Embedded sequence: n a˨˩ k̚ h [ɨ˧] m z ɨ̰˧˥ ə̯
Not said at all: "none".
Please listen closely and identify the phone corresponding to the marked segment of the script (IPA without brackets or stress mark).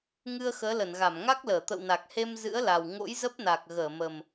e˧